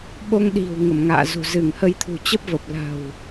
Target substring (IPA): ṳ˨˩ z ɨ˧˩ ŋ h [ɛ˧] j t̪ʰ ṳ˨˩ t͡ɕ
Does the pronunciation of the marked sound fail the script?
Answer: yes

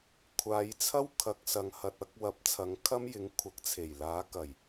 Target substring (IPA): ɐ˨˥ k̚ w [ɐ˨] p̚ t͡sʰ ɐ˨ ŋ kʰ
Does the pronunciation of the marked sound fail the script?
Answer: yes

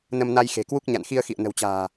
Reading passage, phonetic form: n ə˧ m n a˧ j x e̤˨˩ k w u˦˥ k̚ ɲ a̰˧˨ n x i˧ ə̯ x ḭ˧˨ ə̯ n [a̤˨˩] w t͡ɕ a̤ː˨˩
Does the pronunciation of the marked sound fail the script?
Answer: yes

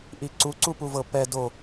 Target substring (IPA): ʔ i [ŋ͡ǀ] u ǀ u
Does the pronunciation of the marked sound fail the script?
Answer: yes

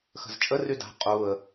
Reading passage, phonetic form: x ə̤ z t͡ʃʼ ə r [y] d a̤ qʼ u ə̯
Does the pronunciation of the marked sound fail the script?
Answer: no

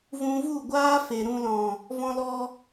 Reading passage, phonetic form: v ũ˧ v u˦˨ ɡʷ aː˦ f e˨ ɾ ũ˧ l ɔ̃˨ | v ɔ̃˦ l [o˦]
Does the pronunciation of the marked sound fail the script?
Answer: yes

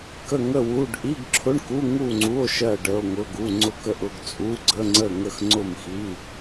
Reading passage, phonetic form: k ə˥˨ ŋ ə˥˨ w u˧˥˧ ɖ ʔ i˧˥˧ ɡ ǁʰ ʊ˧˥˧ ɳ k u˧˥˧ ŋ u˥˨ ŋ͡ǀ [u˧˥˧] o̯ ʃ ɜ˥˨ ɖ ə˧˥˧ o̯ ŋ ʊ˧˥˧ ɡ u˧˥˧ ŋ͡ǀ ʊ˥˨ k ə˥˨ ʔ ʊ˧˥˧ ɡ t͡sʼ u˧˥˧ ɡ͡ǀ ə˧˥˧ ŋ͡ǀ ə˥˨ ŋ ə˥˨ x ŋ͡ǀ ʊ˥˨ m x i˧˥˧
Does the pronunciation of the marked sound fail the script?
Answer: no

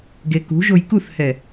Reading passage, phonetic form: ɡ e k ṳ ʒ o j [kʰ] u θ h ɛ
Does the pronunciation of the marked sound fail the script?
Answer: yes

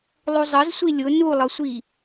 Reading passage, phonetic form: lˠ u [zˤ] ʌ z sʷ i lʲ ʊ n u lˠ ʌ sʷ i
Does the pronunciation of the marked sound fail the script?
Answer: no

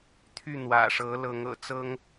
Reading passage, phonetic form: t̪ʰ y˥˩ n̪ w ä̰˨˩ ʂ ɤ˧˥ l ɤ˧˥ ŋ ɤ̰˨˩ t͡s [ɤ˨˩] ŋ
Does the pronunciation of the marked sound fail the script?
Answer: yes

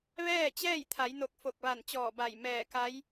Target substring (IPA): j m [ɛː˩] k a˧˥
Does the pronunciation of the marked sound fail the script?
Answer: yes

